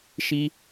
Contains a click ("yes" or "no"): no